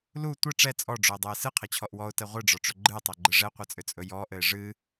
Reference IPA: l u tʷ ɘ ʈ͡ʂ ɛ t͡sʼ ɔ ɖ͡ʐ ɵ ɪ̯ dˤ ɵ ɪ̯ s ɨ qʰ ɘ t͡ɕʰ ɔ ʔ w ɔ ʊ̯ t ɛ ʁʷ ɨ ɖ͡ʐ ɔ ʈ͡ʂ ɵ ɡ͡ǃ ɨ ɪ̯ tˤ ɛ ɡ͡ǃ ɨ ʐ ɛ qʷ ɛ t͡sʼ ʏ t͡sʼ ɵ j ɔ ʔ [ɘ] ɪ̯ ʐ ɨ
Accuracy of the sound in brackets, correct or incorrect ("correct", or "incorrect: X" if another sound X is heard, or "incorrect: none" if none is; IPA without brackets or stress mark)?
correct